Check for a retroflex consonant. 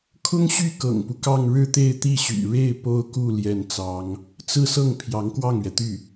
present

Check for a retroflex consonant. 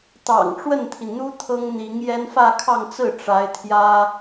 present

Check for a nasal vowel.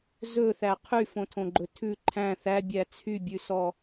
present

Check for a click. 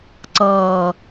present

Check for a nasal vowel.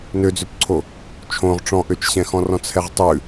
present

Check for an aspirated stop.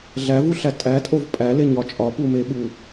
absent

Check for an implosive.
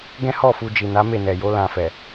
absent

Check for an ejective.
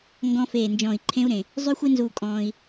present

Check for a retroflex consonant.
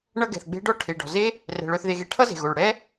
present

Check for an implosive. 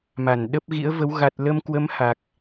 present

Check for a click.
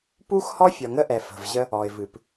absent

